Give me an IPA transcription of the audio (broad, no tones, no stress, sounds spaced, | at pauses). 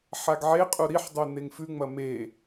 ħ a ɡ ʕ e qʼ u ɾ i ħ dˤ ʉ n e ŋ f ʉ ŋ͡m ɐ m e